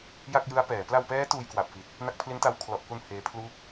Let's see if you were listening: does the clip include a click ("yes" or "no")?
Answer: no